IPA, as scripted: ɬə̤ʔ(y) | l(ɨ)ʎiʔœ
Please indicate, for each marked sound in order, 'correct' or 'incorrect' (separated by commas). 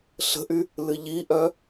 correct, correct